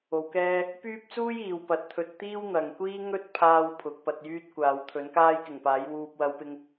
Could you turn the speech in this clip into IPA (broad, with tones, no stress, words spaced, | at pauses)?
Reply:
o˧wkɛː˥ | pyː˥p̚t͡suː˥j iː˨˧wpɐ˨˥t̚t̪ʰɵ˧t̚ t̪iː˥wn̪ɐ˨ŋkʷiː˥ ŋɵ˥t̚pʰaː˧w pʰʊ˨˥k̚pɐ˧t̚jyː˥t̚kʷaː˨˧w t̪ʰɵ˨˥nkaː˥jkɪ˨˩ŋpaː˨˥j wuː˨p̚wɐ˨˧wpɪ˧ŋ